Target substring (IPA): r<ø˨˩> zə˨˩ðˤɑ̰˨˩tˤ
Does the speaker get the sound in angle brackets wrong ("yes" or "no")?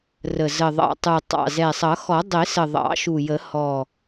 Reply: yes